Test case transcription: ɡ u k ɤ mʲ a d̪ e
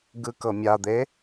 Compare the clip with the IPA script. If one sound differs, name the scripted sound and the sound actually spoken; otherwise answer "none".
u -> ɯ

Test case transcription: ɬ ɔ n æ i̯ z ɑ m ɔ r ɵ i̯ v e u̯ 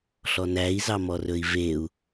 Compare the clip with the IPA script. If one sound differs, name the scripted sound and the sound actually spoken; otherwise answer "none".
none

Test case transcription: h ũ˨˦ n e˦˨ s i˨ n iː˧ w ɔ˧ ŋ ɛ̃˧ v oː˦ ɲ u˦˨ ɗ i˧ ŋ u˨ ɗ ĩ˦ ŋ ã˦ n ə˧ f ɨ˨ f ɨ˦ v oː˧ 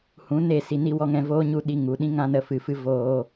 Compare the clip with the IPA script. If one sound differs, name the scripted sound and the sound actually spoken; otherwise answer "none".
iː˧ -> i˧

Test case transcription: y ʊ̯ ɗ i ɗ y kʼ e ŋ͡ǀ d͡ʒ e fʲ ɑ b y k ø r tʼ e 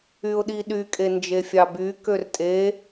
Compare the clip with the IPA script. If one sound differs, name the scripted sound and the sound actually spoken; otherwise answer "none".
ŋ͡ǀ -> n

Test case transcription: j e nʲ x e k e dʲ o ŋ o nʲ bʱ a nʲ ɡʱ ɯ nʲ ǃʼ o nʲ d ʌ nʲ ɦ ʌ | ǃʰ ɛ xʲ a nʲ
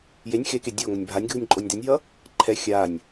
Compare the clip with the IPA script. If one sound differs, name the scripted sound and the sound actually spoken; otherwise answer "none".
none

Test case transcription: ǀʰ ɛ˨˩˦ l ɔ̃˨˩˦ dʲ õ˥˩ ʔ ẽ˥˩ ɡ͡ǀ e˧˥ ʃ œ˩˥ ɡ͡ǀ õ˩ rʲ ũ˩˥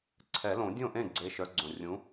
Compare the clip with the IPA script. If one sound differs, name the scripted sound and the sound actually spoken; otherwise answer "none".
ɔ̃˨˩˦ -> õ˨˩˦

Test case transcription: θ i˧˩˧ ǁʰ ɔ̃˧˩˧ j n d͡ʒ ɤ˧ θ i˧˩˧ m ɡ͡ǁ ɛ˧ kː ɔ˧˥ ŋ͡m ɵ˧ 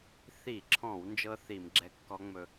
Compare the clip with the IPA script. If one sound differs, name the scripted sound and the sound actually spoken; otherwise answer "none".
j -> w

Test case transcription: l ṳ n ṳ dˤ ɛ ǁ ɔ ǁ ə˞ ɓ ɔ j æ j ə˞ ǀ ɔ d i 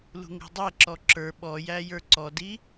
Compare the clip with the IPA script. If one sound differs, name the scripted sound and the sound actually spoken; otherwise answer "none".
n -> ŋ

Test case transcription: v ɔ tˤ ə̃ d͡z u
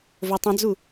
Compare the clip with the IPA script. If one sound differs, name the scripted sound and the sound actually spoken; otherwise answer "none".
ɔ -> o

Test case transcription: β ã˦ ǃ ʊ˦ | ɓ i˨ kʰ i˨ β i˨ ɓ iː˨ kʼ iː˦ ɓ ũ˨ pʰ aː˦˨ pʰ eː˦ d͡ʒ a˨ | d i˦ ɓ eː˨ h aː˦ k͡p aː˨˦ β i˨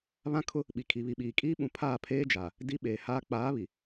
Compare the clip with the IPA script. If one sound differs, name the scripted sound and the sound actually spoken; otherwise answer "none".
ǃ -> kʰ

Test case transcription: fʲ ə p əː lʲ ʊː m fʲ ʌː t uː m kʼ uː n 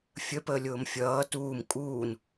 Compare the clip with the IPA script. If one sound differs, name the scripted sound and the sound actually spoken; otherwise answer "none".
none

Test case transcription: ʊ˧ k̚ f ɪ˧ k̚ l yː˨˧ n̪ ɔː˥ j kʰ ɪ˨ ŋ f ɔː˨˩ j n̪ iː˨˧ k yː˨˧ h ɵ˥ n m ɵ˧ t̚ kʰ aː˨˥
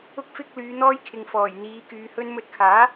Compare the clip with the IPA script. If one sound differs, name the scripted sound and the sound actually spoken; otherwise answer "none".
none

